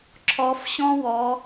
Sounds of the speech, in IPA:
ǁʰ ɔ˨˦ f ɕ ɔ̃˥ w ɔ˨˦

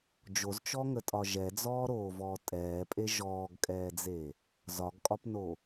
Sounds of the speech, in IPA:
d͡ʒ o z t͡ʃ ɔ ŋ ə tʼ ɒ ʒ ɛ d͡z ɔː ɾ oː v ɔː tʼ ɛː pʼ e ʒ ɔː ɡ kʼ ɛː d͡z e | z ɒ ɡ kʼ ɒ p n o

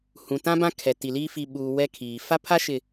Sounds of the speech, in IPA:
h ũ˨ t ã˦ b ã˦ kʰ ɛ˨ t i˨ l i˦ f i˨ ɓ uː˨ w ɛ˦ kʰ iː˨ f a˦ pʰ a˦ ʃ ɪ˨

